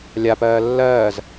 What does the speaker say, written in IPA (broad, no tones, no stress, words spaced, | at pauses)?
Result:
lʲapɜː lːɜːz